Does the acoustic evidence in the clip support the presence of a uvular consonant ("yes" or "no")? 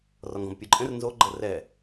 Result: no